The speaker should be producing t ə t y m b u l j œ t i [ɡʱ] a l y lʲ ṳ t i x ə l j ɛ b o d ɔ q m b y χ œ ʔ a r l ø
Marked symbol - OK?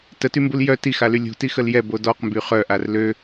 no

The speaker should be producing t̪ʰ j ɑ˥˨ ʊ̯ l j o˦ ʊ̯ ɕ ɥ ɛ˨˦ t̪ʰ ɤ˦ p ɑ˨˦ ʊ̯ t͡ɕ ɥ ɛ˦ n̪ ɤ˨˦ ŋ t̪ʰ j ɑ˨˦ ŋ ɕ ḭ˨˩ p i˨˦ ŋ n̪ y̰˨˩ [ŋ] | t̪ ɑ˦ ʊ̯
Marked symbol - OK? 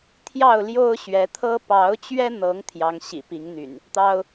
no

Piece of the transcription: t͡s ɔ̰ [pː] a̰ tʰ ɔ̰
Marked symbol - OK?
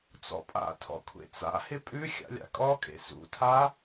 no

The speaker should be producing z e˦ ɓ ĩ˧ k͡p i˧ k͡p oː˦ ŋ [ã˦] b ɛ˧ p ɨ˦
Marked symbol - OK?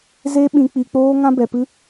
yes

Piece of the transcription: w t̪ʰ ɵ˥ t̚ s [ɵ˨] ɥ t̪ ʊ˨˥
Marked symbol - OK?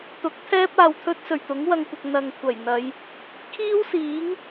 no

